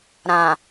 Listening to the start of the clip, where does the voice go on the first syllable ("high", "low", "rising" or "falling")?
low